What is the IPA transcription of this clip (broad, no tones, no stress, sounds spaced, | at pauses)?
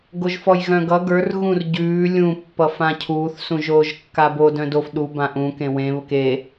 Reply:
ɡ o ʒ f ɔ j ɣ œ̃ ɡ ʌ ɡ ə˞ r ɣ ũ r ɟ ʉː lʲ ũ pː ʌ f ã cʰ uː θ s ũ ʒ oː ʒ kː a b o d œ̃ d o f ɗ u b ã ʔ ũ k ẽ w ẽ β ə k e